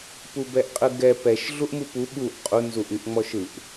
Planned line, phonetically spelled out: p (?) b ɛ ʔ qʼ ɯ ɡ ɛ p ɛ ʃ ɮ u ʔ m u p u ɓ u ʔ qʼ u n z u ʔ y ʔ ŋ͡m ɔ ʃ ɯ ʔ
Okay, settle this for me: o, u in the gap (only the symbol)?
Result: u